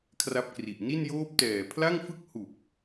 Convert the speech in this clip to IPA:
kʰ r a˦˥ p̚ k r i˨˩ ʔ n i˥˩ n j oː˦˥ p̚ t ɛː˨˩ pʰ l a˥˩ ŋ f ɯ˥˩ k̚ h u˨˩ k̚

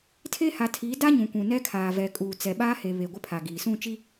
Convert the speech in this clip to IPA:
tʰ e˦ h a˨ tʰ iː˨˦ d a˦ ɲ ũ˨ kʷ ũ˨ n ɛ˦ kʰ aː˨ v ɛ˨ kʼ uː˨ t͡s ɛ˨ ɓ aː˦ h e˨ β e˨ ɡʷ ɪ˦ pʰ a˨ ɡ iː˨ s ũ˦˨ t͡ʃ i˦

